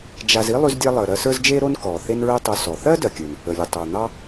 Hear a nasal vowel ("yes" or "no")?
no